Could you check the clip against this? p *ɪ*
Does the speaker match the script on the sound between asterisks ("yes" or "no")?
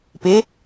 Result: yes